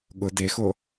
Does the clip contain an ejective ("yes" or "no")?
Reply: no